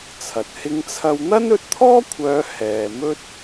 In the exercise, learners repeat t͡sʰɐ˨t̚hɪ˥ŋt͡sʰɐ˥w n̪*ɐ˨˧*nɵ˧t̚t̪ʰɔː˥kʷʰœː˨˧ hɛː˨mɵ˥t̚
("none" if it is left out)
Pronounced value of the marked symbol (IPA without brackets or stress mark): ɐ˥